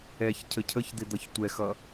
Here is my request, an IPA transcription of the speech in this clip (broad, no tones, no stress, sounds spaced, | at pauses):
ɛ ç cʰ ə cʰ ə ç d̪ ɪ d̪ ʌ ç tʷ ɛ x ʌ